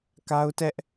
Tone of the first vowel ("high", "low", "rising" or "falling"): high